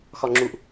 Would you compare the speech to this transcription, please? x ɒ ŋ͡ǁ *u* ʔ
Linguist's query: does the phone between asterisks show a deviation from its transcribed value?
no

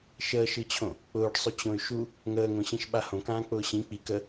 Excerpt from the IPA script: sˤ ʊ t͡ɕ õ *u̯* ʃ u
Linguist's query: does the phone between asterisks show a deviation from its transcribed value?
yes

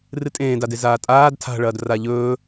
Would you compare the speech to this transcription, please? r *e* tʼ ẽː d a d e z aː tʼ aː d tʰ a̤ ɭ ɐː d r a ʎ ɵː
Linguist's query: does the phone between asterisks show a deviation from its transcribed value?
yes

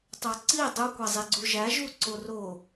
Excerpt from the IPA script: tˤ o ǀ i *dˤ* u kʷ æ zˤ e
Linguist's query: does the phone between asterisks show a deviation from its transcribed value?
no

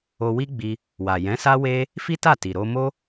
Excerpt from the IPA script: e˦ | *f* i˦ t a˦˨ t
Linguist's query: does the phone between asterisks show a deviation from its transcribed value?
no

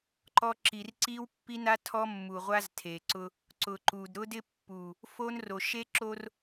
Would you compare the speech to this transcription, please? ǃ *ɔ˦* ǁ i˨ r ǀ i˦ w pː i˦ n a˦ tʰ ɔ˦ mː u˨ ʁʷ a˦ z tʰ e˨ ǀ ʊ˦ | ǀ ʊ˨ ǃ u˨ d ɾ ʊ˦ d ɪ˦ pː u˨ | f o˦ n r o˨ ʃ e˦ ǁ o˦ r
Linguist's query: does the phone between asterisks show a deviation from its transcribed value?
no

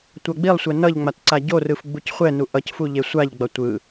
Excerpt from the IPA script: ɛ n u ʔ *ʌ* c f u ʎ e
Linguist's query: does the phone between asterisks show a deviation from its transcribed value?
no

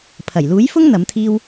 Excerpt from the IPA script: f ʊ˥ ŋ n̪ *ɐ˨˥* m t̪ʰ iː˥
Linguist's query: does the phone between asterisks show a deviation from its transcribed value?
no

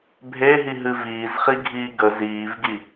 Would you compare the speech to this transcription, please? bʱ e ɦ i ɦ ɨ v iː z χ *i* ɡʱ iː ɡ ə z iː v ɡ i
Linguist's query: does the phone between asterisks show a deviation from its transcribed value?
no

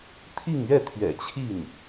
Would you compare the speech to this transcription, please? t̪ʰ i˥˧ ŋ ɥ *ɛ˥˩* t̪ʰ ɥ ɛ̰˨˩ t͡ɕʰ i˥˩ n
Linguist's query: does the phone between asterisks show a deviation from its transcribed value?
no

